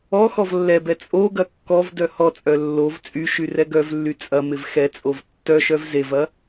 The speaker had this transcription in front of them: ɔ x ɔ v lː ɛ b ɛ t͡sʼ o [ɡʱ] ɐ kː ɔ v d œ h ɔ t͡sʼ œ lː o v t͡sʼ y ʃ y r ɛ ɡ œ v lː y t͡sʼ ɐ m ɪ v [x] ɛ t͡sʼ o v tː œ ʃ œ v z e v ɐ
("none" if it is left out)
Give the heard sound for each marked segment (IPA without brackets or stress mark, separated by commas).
ɡ, x